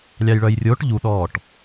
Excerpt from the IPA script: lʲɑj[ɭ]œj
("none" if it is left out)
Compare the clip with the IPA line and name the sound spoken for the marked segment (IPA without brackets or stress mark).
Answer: ɭ